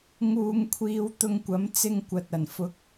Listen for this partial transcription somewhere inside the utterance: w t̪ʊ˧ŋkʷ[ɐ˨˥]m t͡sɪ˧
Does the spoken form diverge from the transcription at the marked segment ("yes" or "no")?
no